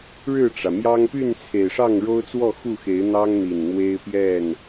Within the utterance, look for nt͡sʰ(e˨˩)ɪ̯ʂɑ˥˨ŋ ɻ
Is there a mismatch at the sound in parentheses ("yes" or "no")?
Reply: no